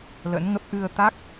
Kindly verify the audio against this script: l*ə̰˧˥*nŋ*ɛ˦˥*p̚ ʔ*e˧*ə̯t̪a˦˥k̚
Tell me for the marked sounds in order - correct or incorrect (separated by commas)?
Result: correct, incorrect, incorrect